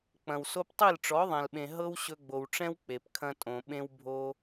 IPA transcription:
k͡p ɐ̃˨ w s o˧ p tˤ i˦˨ l ʈ͡ʂ ɔ˨˦ ðˤ ɛ̃˨ l ɓ ẽ˨ ɦ ɤ˦ w ɕ ɵ˧ ɡ͡b o˨ w ʈ͡ʂ ɛ̃˦ w k͡p e˨ p kʰ ɐ̃˦ tʼ õ˨ ɓ ẽ˧ w bʱ o˦

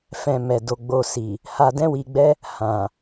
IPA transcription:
f ɛ̃˧ m ɛ˨ d o˧ ɡ͡b o˧ s i˨ | h a˧ d ɛ̃˦ w i˧ ɡ͡b ɛ˦ | h ã˨

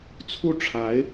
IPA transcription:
t͡sʰ u˥˩ ʈ͡ʂʰ a˧˥ ɪ̯

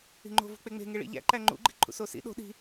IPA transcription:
i̤ ŋ͡ǃ o̤ v ṳ k͡p e ŋ͡m e̤ ŋ e ɭ ḭ ʎ æ̰ ǃ æ ŋ͡ǃ ṵ ɡ͡ǃ i̤ ǃʰ ṵ s o s ḭ ɗ o̤ ɗ i̤

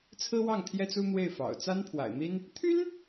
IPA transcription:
t͡sʰ ɹ̩˥ w ɑ˥˩ ŋ t̪ʰ j ɛ˥ t͡s u˥ n̪ w e˥˩ ɪ̯ f ɑ̰˨˩ ʊ̯ t͡s a˥ n pʰ w a̰˨˩ ɪ̯ n̪ i˥ n | t̪ʰ y˥ n

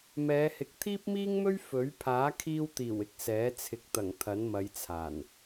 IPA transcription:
m ɛː˨˧ h ɪ˨˥ k̚ t̪ʰ iː˥ p̚ m iː˥ ŋ m ɵ˥ ɥ f ɵ˨˥ ɥ pʰ aː˨˥ kʰ iː˧ w t̪ iː˨˩ w ɪ˧ k̚ s ɛː˨˥ t͡sʰ ɪ˨ k̚ t̪ ɐ˨˩ ŋ t̪ʰ ɐ˨˥ n m ɐ˨˧ j t͡sʰ aː˨˩ n

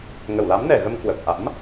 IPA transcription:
ŋ ə˧˩ w l a˨˦ m n ɛ˧˩ ɣ ə˧ m k w ə˨˩ p̚ ʔ a̰˧˥ m

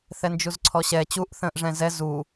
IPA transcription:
θ ɛ n d͡ʒ u z ǀʰ ɔ ɕ ɛ t͡ɕ u ʔ θ ə̃ː ʔ ʐ ɛ̃ z ɛ z u

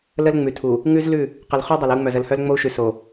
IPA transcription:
l ə˦ l ŋ͡m ʉ˨ tʰ u˨ | ŋ ʉ˦ z l ʉ˦˨ | q ə˨ l χ u˦ dˤ o˨ l ə˦ u̯ ŋ͡m œ˨ z ə˨ l h œ˦ l ŋ͡m o˦ u̯ ʃ ʉ˨ s o˨

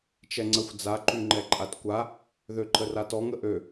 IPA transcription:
t͡ʃ ɛ ŋ͡ǀ ə xʷ d͡z a ǃ y ŋ͡ǃ ɛ ǃʼ a t kʷ a | ð ø ǃ ə r a t ɔ ŋ ə ʔ ø

